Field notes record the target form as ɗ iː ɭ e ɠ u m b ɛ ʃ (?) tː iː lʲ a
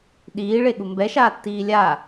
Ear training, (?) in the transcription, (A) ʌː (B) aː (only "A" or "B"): B